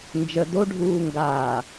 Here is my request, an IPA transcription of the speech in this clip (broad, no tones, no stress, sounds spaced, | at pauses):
n d͡ʒ ə d o ɖʱ uː ŋ ɡ aː